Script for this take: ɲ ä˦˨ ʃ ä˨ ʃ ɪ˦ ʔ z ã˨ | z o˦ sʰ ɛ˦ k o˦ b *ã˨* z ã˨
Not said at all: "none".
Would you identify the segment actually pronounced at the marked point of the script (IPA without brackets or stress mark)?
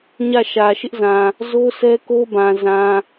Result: ã˨